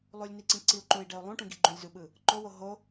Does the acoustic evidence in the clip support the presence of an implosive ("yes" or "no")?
yes